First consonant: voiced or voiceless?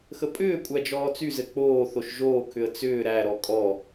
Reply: voiceless